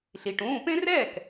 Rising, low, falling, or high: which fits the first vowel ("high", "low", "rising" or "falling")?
low